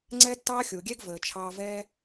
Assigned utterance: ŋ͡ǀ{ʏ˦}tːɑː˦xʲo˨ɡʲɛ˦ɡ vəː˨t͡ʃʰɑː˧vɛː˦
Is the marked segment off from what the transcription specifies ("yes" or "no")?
yes